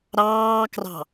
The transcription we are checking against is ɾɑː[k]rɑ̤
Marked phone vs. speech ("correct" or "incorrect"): correct